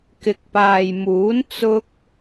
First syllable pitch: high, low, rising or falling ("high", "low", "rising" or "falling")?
low